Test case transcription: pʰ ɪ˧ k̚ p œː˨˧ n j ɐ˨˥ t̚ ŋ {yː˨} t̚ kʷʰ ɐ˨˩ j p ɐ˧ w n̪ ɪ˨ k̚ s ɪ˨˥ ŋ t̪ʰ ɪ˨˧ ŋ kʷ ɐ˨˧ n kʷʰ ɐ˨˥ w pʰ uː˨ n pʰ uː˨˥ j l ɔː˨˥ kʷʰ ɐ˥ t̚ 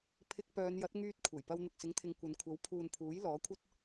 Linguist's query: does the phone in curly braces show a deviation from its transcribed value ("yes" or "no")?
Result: yes